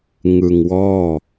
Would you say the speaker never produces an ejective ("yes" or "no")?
yes